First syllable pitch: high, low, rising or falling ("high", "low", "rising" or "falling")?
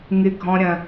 high